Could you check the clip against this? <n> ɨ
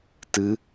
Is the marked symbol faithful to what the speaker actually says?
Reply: no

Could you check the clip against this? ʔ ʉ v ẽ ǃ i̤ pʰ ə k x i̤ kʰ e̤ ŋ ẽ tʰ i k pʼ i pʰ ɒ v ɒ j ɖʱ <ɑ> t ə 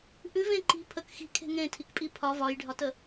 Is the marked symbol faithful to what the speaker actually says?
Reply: no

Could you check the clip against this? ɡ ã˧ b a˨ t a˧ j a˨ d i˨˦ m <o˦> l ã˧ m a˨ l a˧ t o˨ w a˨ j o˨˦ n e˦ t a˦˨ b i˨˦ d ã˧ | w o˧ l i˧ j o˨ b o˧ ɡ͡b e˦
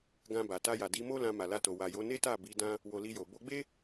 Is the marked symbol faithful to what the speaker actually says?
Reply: yes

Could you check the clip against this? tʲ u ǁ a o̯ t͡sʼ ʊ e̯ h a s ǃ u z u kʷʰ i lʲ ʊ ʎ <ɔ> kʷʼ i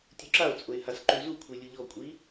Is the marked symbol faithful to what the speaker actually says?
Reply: yes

